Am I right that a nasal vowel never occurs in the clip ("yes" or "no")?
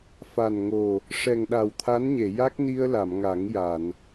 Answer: yes